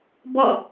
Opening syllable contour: falling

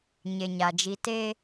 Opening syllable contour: low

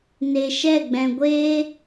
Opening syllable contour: low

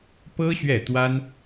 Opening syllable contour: high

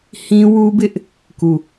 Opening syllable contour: high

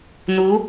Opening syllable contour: rising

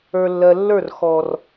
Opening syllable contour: low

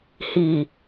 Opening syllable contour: low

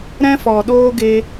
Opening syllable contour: high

